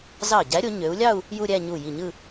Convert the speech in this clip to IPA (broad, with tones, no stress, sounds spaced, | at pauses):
z ɑ˧˩ ɟ æ˨˦ ɾʲ o˨˦ ɲ ø˨˦ u̯ lʲ ɑ˥˧ u̯ | j u˥˧ ɾʲ æ˥˧ ɲ u˧˩ j i˧˩ ɲ ɯ˥˧